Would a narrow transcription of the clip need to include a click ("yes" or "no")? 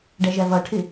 no